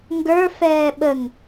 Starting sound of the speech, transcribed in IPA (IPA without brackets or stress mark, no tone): ŋ